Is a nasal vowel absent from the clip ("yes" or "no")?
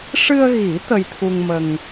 yes